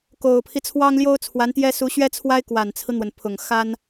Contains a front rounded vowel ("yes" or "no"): no